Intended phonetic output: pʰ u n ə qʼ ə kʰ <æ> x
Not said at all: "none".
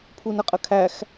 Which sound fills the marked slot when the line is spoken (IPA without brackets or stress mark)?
æ